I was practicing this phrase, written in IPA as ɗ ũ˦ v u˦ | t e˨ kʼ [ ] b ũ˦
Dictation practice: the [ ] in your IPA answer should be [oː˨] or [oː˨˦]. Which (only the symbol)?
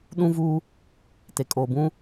oː˨